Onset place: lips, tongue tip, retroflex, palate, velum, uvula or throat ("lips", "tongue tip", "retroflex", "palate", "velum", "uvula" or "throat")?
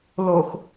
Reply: tongue tip